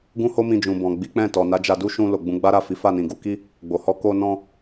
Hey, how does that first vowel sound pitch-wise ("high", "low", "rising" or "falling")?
high